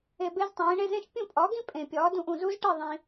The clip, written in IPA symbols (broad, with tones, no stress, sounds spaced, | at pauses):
e˧ b e˥ z tˤ ẽː˩˥ ɳ e˥ z ẽ˥ ʃ pʲ ũ˥˩ pʼ ɒ˩˥ ɡ ĩ˥ pʼ ẽ˩ pʲ ɒː˩˥ d ũ˧ ʔ ũ˩ z u˥ z ʈ e˥˩ ðˤ ĩ˩